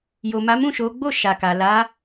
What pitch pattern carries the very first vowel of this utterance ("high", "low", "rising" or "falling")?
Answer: low